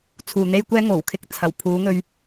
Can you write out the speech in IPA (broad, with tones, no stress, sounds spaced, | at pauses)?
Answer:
t͡sʰ uː˨ n̪ e˥ j kʷ ɛː˥ ŋ o˨˩ w kʰ ɪ˧ k̚ t͡sʰ ɐ˨˩ w pʰ uː˨˧ ŋ ɵ˧ ɥ